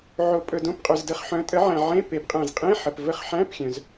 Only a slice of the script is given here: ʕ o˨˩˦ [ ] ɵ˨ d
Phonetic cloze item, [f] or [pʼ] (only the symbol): pʼ